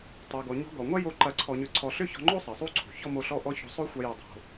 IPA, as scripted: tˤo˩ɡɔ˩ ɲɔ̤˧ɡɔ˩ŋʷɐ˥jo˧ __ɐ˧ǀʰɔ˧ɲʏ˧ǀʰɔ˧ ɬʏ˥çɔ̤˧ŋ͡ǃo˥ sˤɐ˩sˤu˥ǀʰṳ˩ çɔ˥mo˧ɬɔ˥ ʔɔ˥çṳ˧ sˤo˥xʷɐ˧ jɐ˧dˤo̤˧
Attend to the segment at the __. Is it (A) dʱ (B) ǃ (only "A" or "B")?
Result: B